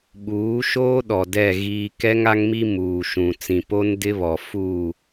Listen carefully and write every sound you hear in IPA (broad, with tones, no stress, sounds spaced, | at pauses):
ɓ uː˨˦ ʃ oː˦ ɗ ɔ˨ d ɛ˦˨ ɣ iː˦ k ɛ˦ ŋ a˦ ŋ m i˦ m uː˨ ʃ ũ˨ t͡s ĩ˨ p o˦ n d ɪ˦ β ɔ˨ f u˦˨